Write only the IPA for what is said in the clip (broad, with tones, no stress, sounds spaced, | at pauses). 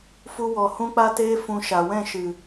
f u˦ w ɔ˧ h ũ˦ k͡p a˦ t eː˦ f ũ˧ ʃ a˨ w ɛ̃˦˨ ʃ ɨ˨